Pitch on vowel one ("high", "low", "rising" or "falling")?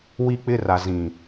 high